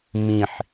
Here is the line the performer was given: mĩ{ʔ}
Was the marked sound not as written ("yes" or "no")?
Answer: yes